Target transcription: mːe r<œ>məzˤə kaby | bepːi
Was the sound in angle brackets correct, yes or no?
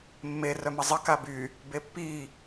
yes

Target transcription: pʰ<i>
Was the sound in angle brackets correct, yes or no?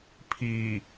yes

